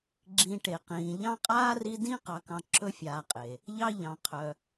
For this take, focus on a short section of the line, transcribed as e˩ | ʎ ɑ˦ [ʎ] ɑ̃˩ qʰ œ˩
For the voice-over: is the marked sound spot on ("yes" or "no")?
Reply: yes